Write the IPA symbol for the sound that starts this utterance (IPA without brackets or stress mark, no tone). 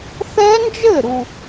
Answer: θ